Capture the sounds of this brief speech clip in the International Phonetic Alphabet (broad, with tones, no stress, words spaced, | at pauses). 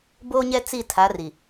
boː˦ɲɛ˦ t͡si˦˨ tʰa˨˦ri˨